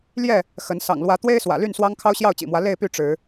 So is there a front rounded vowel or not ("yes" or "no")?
yes